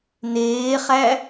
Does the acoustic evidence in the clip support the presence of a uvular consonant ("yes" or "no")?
yes